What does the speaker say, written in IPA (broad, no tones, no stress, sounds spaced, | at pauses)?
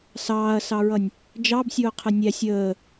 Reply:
s ɑː ɐ̯ s ɑ ɹ ʌ nʲ | d͡ʒ ɑ b sʲ ʊː qʰ ə nʲ æ sʲ əː